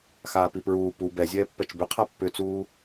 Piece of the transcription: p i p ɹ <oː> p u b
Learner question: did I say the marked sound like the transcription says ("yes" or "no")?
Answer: no